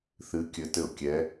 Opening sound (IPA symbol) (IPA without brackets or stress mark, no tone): θ